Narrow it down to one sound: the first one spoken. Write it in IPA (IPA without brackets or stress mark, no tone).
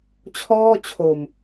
t͡ɕʰ